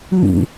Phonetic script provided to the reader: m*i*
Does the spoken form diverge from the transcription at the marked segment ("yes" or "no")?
yes